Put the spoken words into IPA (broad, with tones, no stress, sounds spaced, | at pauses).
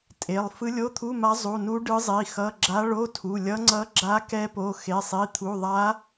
tʼ e˩˧˩ lˠ f ɯ˧˥ lʲ o˧˥˧ t̪ʰ u˧˥˧ m a˧˥ zˤ u˩˧˩ n u˧˥ ɖ ɯ˧˥ zˤ i˩˧˩ x ʌ˧˥˧ ɡ͡ǁ a˧˥ ɭ o˧˥˧ tʰ u˩˧˩ lʲ ʌ˧˥ ŋ͡ǀ ʌ˧˥ ɡ͡ǁ a˧˥ k ɛ˧˥ p o˩˧˩ x e˩˧˩ sˤ i˩˧˩ t̪ʰ u˩˧˩ ðˤ a˧˥